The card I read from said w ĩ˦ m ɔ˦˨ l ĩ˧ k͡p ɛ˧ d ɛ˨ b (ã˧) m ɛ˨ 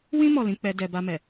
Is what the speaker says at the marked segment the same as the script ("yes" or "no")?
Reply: no